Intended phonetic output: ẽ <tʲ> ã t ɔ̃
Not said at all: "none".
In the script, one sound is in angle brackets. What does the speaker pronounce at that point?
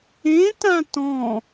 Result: t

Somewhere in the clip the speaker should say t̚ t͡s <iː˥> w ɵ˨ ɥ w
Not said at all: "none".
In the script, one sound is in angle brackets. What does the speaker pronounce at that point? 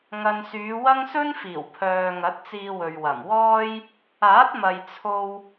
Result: iː˧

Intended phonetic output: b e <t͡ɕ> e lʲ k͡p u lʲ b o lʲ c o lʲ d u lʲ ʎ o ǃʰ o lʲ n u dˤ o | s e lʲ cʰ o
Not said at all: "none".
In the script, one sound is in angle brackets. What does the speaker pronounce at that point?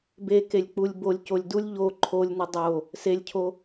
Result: k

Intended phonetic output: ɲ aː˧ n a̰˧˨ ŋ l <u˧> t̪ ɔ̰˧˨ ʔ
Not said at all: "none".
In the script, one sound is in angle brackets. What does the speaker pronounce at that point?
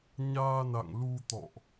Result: u˧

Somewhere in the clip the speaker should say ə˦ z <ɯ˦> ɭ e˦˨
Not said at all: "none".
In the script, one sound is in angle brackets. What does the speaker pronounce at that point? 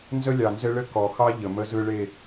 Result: ɯ˦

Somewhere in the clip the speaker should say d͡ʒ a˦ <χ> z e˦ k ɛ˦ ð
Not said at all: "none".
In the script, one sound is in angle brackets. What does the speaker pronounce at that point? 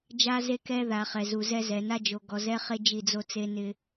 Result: none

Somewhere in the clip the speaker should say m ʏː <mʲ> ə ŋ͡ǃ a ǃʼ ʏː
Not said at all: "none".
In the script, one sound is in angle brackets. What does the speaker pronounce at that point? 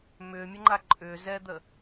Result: mʲ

